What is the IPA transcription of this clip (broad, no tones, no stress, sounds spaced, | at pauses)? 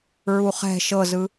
ɹ u χ ɛ̤ ʃ ɤ z ɯ